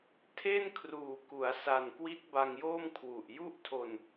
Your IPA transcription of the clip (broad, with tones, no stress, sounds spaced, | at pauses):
tʰ e˥˩ n kʰ r uː˨˩ k u˩˦ a̯ s a˨˩ n k w i˦˥ t̚ b a˧ ŋ j oː˥˩ m kʰ w u˨˩ ʔ j u˥˩ ʔ tʰ o˧ n